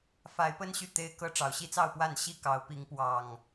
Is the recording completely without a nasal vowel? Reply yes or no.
yes